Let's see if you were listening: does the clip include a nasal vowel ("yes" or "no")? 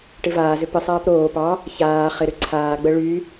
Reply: no